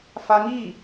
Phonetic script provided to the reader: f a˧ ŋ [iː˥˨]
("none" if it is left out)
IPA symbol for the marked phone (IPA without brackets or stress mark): iː˥˨